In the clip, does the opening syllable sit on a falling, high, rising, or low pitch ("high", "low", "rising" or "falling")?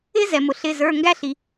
high